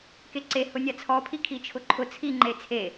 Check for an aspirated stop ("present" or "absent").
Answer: present